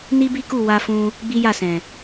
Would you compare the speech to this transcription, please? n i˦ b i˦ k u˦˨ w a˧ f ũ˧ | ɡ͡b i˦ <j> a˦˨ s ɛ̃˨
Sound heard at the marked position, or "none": j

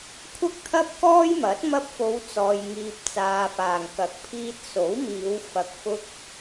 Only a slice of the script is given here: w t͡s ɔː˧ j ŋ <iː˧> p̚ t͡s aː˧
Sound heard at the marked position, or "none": iː˧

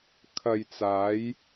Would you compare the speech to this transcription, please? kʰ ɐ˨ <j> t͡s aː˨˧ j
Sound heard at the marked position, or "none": j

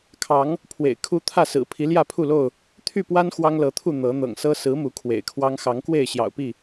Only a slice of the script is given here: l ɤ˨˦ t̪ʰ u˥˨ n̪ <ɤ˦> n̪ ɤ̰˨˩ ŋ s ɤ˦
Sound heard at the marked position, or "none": ɤ˨˦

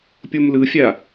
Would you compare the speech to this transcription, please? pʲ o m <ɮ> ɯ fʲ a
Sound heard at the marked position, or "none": l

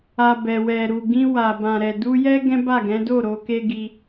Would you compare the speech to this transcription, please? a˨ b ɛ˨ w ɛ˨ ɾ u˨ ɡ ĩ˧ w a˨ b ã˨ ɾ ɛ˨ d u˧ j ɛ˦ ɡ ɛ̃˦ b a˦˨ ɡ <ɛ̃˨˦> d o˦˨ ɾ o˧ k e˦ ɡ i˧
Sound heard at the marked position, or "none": ɛ̃˨˦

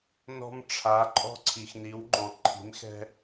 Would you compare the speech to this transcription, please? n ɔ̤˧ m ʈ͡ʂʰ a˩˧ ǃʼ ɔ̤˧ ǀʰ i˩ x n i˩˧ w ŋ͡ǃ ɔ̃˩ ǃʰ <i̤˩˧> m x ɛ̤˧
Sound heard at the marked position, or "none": i̤˩˧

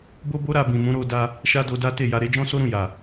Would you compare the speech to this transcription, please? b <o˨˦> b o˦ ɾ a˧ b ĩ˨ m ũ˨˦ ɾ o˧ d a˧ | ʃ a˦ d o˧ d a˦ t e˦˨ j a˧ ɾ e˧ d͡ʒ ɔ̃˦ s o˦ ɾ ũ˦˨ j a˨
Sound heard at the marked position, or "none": o˦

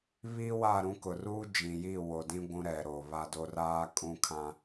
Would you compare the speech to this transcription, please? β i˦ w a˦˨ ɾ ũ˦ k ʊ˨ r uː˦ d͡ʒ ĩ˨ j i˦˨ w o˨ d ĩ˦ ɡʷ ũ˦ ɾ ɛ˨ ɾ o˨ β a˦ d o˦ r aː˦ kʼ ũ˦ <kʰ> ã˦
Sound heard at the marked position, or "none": kʰ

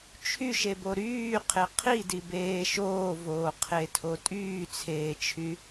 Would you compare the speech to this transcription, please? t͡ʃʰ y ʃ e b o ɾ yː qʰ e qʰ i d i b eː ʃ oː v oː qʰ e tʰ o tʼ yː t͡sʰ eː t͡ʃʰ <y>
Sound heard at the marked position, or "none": y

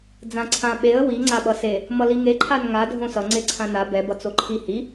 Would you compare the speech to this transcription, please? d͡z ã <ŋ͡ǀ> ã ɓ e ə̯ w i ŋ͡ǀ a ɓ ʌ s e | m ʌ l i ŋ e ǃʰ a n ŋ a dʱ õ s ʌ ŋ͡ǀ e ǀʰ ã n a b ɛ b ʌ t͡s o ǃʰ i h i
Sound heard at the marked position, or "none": ǀʰ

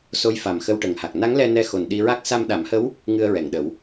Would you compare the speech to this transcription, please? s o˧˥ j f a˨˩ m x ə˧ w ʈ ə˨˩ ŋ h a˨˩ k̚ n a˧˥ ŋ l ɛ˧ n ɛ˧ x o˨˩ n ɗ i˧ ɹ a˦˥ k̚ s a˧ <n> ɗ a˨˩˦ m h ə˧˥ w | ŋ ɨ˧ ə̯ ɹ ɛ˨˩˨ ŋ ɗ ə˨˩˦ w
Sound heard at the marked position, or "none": m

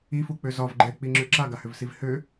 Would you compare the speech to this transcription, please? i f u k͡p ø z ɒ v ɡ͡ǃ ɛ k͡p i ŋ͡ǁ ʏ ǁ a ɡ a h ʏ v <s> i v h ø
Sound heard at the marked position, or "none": s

